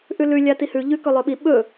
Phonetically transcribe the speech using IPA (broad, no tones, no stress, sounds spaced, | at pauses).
ʔ ʉ l ʉ lʲ a t i h ʉ ʎ ʉ k ɵ lˠ ɵ ɓ i ɓ ɵ